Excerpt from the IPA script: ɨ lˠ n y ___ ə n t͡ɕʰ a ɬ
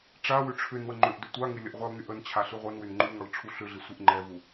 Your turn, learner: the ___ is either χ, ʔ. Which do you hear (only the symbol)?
ʔ